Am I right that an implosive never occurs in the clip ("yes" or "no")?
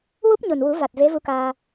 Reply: yes